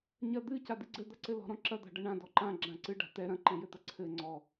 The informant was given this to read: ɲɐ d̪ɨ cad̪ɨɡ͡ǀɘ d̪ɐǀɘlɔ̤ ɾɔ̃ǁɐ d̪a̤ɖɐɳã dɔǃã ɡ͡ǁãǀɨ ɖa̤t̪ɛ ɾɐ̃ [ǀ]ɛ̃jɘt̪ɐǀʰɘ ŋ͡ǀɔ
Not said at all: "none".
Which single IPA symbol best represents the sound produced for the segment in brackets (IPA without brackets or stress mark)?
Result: ǃ